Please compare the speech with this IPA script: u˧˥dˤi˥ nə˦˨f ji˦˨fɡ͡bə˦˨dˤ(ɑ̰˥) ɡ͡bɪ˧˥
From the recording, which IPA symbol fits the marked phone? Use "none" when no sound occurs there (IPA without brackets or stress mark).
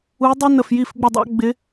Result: ɑ̰˥